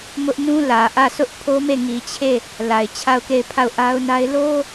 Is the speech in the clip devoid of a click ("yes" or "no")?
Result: yes